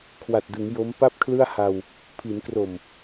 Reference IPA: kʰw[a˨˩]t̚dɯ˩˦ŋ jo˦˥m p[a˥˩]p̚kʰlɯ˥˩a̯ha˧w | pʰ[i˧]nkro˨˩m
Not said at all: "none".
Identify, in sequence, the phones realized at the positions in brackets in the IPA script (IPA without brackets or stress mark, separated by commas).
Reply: a˨˩, a˥˩, i˩˦